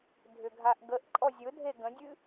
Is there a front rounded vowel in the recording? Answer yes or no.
yes